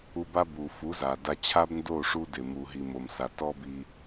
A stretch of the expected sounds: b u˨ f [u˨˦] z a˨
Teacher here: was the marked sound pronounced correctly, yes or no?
yes